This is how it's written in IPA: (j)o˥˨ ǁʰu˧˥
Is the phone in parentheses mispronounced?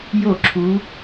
no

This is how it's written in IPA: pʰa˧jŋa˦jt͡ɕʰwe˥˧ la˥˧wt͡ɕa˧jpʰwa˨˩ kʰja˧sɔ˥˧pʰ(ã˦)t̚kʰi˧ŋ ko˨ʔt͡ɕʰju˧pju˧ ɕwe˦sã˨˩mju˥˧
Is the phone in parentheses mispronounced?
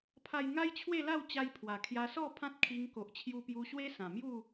no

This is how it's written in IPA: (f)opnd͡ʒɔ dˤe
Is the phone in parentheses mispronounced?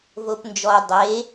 yes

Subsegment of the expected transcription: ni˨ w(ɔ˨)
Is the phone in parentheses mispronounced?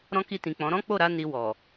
no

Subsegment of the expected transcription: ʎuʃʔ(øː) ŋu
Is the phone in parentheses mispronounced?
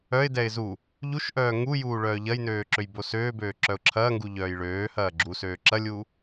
yes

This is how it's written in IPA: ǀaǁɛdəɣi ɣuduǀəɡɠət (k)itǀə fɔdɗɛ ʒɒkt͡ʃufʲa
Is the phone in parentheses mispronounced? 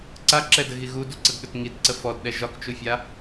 yes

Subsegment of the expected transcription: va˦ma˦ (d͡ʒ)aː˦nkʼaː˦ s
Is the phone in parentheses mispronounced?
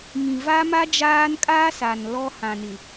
no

